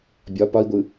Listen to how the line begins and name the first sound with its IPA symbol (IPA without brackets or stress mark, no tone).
bʲ